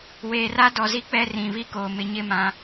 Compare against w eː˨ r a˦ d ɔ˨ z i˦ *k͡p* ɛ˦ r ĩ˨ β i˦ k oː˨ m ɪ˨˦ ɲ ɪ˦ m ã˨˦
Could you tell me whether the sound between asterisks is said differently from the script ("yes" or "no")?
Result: no